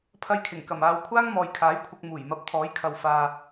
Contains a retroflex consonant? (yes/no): no